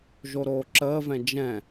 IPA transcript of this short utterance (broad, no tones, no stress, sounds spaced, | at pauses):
ʒ o ɾ oː ǁ əː v ɛ̃ d͡ʒ ɛ̃